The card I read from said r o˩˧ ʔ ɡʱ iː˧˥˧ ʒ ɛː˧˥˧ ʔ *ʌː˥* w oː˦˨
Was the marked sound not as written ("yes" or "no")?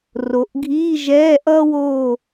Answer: no